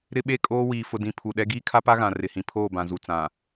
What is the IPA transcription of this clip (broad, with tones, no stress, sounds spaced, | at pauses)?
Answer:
ɾ ɪ˦ ɓ e˦ kʼ oː˦ w iː˨ f ʊ˨ d ĩ˨ pʰ u˨ ɗ ɛ˦ ɡ iː˦ kʰ a˦ p a˦ ɣ ã˨ r ɪ˨ h ĩ˨ pʰ oː˦˨ b ã˨ z u˨ t͡s ã˨